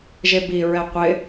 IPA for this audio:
ʒ e b i ɹ ɛ qʷ ɪ

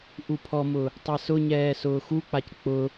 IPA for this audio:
ʔ u pʰ ɔ m ʊ | tˤ e s ʊ ɲ ɛː s ʊː x u k͡p a c k͡p ʊ

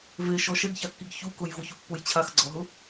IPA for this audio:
v e ʃ ɔ ʃ ɛ ɡ ç a kː i ɡ ç u k ʊ j v ʊ ç u pː ʊ j t͡ɕʰ a x ɡ͡ǀ ɔ ɦ ʊ

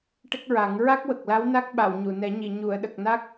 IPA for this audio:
ʈ ə˦˥ k̚ ɹ a˨˩˦ ŋ ɹ a˦˥ k̚ w ə˨˩ k̚ l a˧˥ w n a˦˥ k̚ ɓ a˨˩˨ w ɲ u˨˩˨ n ɛ˨˩˦ ɲ i˨˩˨ ɲ u˨˩˨ ə̯ ɗ ə˨˩ k̚ n a˦˥ k̚

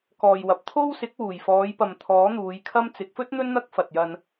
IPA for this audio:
k ɔː˨ j w ɐ˨˥ p̚ t̪ʰ o˥ w s ɪ˨˥ k̚ w uː˨˩ j f ɔː˨˧ j p ɐ˨ m t̪ʰ ɔː˨˥ n̪ uː˨˧ j kʰ ɐ˥ m t͡s ɪ˨˥ k̚ f ɵ˥ t̚ n̪ ɵ˥ n n̪ ɐ˥ k̚ f ɐ˨ t̚ j ɐ˧ n

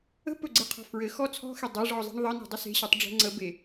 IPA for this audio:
ə̤ p ɵ ɡ͡ǀ e qʰ ɔ̤ f ɹ ɘ x ɔ t͡sʰ ɔ̤ x e dˤ e ʐ ɔ zˤ e̤ ɳ ðˤ ɘ n e̤ dˤ ə s e̤ ɕ ɵ tˤ ɖ͡ʐ e̤ ŋ͡ǀ ə b e

